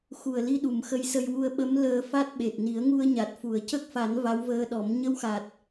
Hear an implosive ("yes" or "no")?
yes